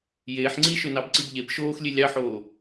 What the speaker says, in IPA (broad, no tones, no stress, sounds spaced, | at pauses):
j eː ħ ŋ͡ǀ i ʃ ø n ɑ b ǀ i b ʎ e b ʃ oː x lʲ e lʲ ɑ ħ oː